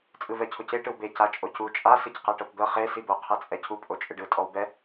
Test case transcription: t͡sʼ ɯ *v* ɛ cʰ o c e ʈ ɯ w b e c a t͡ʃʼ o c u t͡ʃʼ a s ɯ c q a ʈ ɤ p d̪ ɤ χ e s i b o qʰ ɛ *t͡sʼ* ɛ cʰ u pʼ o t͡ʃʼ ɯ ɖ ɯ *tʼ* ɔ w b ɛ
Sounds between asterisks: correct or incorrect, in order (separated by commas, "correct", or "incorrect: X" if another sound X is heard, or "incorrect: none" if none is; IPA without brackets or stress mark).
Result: correct, correct, correct